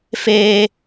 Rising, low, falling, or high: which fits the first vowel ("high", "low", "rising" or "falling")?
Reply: high